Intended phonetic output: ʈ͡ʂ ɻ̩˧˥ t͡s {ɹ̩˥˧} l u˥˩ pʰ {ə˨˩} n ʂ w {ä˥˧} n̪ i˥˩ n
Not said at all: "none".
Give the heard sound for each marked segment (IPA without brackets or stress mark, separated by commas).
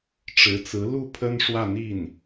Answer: ɹ̩˧˥, ə˥, ä˥˧